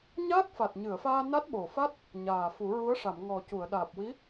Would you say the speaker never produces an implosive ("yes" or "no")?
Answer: no